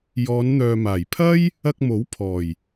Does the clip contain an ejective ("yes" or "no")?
no